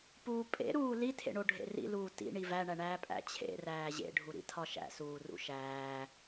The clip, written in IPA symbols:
p uː pʼ ḛ ɾ uː l i tʰ ḛ ɳ o ɖʱ ḛ r ḭ l uː t ḭ ɳ i v æ ɳ æ ɳ æː pʼ æ̰ t͡ɕʰ ḛ r æː ʑ ḛ ɖʱ u ɾ ḭ tʰ ɒ ʃ æ̰ s uː r ṵ ʃ æː

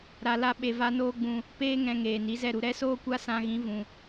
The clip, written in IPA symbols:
ɾ a˧ l a˦ ɓ e˧ v a˦ n oː˦ ɡ͡b ũ˧ | p eː˦ ŋ ɛ̃˧ ŋ eː˨ n i˨˦ z ɛ˦˨ ɾ u˧ ɾ ɛ˦ s oː˦ kʷ a˦ s ã˧ ɣ ĩ˨˦ v ũ˨

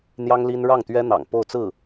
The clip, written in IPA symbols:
n̪ j ɑ˥ ŋ l i˥ n ɻ ɑ˥˩ ŋ t̪ ɥ ɛ˥ n̪ ɑ̰˨˩ ŋ p o˥˧ ʊ̯ t͡s ɹ̩˥˩

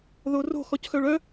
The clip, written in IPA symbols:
ð o r o̤ x ɔ c x œ ɭ œ

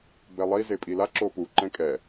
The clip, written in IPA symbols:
b ɛ lˠ i z e pʼ i l a ǁ o p u ǃ ɛ̃ kʼ ɛ

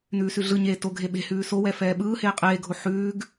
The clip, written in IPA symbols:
n ʉː s ʉ ɮ ɯ ɲ eː t o ɡʱ e ɓ e̤ h ʉː s o w ɛ f ɛː ɓ ɯː h eː qʼ eː ɡʱ o ħ ʉː ɡ

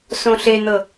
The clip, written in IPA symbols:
s õ ɬ e n̪ ɤ

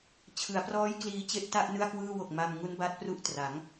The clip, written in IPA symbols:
t͡ɕʰ ɯ˩˦ a̯ p r ɔː˦˥ j k l iː˧ t͡ɕ e˥˩ ʔ t a˥˩ ʔ n ɯ˥˩ a̯ k w ɯː˥˩ w o˨˩ k̚ m a˧ m ŋ u˦˥ n b a˦˥ t̚ p r u˥˩ ʔ t r a˩˦ ŋ

